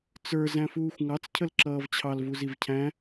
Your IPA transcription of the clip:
t͡s ə˞ z æ̃ f uː xʷ ŋ ɑ t͡s cʰ ə l ǁ ʌː v t͡ɕʰ ɑ l v u z i v cʰ æ̃

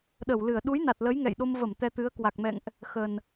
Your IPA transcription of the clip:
ɗ ə˧˩ w l ɨ˧˩ ə̯ ɗ u˨˦ j n a˨˩ t̚ l ə˨˦ j ŋ ɛ̰˧˨ j ɗ o˧ m v ə˧˩ m t̪ ɛ˧ t̪ ɨ˨˦ ə̯ k w a˨˩ k̚ m ɛ̰˧˨ ŋ ʔ | x ə˨˩ n

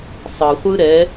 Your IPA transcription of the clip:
sˤ ɯ χʷ ɯ ɾ ɛ

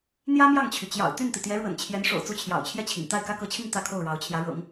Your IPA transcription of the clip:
n̪ j ä˥ m j ɑ˥˩ ŋ t͡ɕʰ y˩ t͡ɕ j ɑ̰˨˩ ʊ̯ t̪ y˥˩ n t̪ i˩ t̪ j ɛ˧˥ ɻ w ə̰˨˩ n t͡ɕʰ j ɛ˧˥ n ʂ o̰˨˩ ʊ̯ t͡s u˥˩ t͡ɕʰ j ɑ̰˨˩ ʊ̯ t͡ɕʰ j ɛ˥˩ t͡ɕʰ ḭ˨˩ ŋ t̪ a˥˩ ɪ̯ k ä˥ k ɤ˧˥ t͡ɕʰ i˥˧ ŋ t̪ ä˥˧ kʰ o˥˩ ʊ̯ ɻ ɑ˧˥ ʊ̯ t͡ɕʰ j ä˧˥ ɻ ɤ̰˨˩˦ ŋ

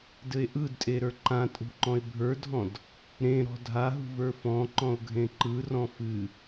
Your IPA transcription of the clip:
d ɘ e̯ ʔ ɯ d tʼ e ɾ ə˞ ǃ ã tʼ ṳ ǃ ɔ̃ e̯ bʱ ə˞ dʱ ɔ̃ d | ɾ ẽ ɾ ɔ̤ dʱ a ɦ ṳ v ə˞ f ɔ̃ ǃ ɔ̃ o̯ ɡʱ ẽ ǃ ɯ r ɔ̃ f ɨ

